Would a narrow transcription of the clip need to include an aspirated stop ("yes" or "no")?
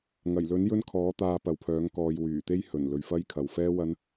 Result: yes